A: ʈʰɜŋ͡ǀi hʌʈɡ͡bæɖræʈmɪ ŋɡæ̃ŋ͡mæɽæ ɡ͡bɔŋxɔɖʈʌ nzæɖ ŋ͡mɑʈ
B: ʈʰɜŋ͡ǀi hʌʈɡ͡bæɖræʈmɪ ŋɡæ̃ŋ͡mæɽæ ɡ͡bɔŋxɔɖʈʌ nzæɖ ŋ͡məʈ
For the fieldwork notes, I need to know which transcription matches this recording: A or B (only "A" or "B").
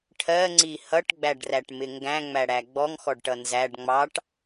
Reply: A